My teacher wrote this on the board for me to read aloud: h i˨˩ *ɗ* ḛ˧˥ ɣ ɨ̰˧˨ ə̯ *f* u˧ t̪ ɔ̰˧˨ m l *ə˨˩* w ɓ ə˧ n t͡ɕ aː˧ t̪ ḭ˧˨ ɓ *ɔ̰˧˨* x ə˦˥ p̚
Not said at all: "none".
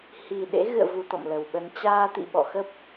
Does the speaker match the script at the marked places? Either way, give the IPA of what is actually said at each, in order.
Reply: ɗ, v, ə˨˩, ɔ̰˧˨

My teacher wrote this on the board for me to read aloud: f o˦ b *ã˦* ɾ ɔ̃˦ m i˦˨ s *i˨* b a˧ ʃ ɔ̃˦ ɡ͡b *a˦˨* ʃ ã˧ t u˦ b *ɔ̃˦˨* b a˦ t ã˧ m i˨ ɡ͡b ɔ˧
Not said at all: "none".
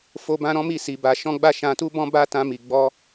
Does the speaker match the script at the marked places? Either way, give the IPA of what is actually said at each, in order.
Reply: ã˦, i˧, a˦˨, ɔ̃˦

